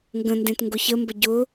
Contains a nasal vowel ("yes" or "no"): yes